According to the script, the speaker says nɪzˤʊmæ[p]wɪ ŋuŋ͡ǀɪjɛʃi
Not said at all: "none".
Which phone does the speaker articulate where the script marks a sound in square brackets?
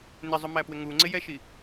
p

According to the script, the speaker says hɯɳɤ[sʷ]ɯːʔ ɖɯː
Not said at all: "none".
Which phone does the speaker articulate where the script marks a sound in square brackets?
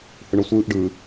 sʷ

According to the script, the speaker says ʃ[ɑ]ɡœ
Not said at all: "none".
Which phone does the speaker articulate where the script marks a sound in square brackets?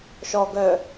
ɔ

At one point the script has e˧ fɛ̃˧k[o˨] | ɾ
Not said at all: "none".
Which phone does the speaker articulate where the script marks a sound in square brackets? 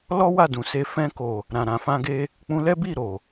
o˨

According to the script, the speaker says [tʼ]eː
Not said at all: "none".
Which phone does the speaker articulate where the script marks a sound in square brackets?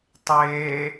tˤ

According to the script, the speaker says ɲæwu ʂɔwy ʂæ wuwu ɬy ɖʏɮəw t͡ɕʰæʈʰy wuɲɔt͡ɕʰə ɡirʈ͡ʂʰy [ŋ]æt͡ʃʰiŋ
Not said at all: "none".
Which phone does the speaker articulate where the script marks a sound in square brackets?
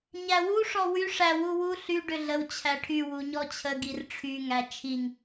ŋ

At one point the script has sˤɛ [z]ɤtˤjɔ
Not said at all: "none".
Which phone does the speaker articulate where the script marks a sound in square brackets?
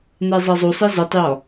z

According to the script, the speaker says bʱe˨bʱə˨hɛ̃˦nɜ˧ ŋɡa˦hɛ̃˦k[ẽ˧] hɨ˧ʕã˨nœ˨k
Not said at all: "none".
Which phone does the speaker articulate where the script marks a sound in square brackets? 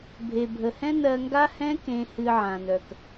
ẽ˧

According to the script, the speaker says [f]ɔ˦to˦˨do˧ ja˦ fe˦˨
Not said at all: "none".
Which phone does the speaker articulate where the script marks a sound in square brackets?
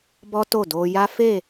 b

